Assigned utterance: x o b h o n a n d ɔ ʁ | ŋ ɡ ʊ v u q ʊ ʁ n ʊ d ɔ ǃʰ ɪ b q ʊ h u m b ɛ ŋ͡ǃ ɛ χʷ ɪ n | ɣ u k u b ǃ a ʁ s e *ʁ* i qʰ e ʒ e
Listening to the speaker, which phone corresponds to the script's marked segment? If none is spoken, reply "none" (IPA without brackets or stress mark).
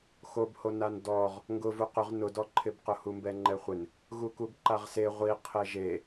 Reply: ʁʷ